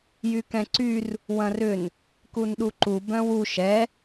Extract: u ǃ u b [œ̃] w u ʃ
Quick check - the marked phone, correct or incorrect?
correct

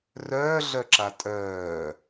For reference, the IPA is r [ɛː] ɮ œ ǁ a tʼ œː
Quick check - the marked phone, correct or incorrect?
incorrect: œː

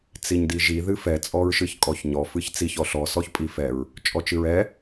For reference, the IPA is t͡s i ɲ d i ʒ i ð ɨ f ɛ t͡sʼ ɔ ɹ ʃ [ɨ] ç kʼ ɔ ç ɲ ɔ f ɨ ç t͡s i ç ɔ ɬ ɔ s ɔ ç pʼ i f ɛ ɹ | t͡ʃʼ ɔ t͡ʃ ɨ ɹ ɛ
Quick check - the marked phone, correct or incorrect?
correct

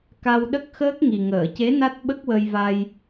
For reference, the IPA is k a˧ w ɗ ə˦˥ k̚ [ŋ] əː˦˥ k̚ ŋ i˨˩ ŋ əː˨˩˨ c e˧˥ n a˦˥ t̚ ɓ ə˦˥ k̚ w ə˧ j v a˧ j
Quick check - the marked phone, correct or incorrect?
incorrect: x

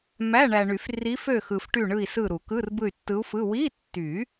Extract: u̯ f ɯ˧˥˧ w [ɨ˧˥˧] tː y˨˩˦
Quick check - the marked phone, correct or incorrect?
incorrect: i˧˥˧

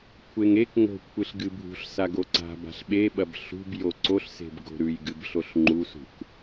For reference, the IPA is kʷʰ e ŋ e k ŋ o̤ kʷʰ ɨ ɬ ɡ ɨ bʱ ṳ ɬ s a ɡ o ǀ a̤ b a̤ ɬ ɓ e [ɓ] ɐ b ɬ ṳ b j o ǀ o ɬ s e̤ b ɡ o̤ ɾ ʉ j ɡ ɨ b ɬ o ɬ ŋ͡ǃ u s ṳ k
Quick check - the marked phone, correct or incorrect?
correct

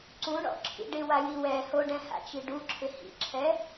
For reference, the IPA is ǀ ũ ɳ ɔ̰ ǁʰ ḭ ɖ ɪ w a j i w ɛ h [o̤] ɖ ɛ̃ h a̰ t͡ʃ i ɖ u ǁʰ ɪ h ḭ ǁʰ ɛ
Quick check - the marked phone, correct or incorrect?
incorrect: o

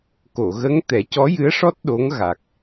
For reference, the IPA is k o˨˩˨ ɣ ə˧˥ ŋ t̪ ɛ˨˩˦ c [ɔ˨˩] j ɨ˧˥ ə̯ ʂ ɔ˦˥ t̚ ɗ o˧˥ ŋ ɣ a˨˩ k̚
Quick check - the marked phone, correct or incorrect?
incorrect: ɔ˧˥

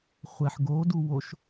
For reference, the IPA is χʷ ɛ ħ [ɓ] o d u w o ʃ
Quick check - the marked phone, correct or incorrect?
incorrect: ɡ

